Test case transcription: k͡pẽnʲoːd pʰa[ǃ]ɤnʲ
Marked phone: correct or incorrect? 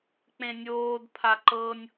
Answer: correct